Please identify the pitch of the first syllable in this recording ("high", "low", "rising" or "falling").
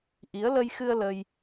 rising